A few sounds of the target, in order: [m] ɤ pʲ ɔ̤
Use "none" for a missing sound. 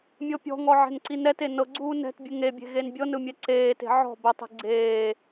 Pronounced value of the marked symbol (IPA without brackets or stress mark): mʲ